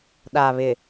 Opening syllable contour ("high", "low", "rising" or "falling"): low